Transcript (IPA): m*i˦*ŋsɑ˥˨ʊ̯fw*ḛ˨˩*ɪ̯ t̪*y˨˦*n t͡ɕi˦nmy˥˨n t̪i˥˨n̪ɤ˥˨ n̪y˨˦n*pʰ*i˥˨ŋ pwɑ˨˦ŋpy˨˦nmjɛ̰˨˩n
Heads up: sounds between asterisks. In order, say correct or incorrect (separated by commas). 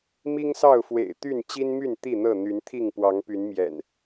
correct, correct, incorrect, incorrect